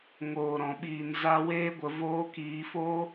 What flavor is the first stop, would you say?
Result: implosive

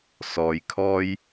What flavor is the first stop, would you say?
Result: aspirated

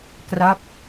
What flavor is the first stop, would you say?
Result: plain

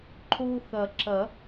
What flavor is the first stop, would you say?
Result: click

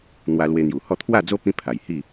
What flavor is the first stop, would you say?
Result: aspirated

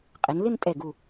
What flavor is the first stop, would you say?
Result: ejective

